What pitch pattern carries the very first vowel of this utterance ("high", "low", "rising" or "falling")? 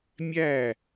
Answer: falling